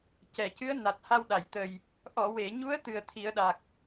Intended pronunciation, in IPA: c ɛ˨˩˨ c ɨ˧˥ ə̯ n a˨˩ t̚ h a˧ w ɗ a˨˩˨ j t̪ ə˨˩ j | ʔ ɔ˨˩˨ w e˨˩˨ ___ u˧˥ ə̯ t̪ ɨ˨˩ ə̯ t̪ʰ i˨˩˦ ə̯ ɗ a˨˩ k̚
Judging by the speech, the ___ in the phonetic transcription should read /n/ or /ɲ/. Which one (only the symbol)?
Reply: ɲ